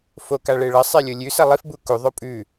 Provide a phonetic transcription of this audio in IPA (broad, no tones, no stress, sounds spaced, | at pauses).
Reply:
f o k a ɭ e ɭ ɐ sˤ e lʲ o lʲ ʉ s ɐ lˠ i f b u k u ðˤ o pʼ ʉ